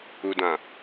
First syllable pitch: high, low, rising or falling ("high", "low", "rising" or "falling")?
low